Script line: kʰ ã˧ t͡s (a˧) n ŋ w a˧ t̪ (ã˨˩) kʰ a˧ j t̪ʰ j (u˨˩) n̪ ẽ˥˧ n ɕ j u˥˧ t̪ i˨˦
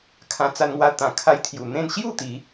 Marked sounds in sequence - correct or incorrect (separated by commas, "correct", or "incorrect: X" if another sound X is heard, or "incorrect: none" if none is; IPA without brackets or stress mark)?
correct, correct, correct